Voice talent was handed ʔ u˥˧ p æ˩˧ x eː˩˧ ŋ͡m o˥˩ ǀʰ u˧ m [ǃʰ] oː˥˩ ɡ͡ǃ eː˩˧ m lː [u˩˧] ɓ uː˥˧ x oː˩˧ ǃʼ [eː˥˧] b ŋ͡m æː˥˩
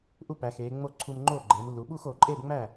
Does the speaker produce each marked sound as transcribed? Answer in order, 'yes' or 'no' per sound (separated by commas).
no, yes, yes